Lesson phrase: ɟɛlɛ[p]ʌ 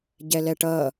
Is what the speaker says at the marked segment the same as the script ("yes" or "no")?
no